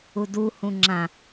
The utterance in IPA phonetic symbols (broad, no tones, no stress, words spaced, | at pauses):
udu hũŋ͡ǁã